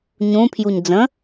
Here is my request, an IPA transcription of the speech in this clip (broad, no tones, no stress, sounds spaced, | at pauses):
ɲ ũ pʰ j u ɲ d͡z ə̃